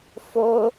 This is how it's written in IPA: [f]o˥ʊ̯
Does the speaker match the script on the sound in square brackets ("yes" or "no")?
yes